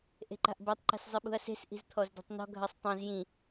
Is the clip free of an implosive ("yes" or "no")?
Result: no